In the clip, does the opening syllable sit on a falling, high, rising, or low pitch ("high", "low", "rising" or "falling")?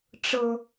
low